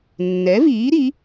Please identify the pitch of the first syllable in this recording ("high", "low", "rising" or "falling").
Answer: rising